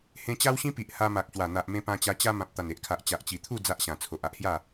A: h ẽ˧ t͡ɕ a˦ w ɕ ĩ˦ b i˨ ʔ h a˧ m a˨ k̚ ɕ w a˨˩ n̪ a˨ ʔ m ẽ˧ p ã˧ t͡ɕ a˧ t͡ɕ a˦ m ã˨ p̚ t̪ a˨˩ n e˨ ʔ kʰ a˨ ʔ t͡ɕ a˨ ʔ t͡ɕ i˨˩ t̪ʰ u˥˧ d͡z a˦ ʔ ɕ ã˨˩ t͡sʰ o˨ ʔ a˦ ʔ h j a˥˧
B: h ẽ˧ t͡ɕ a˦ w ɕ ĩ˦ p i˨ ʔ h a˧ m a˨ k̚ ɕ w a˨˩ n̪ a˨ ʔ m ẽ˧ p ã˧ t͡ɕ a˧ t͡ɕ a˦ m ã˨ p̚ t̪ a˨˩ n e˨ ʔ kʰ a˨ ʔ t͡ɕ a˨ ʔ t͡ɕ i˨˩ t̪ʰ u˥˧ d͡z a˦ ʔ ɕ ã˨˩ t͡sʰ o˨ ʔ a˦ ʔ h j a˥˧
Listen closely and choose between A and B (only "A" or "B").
B